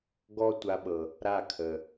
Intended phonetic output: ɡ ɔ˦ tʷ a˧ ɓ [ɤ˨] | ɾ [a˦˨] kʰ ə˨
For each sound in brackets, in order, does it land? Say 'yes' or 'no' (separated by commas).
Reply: yes, yes